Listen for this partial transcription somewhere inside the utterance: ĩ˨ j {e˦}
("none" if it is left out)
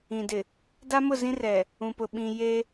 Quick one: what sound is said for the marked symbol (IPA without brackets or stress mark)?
e˦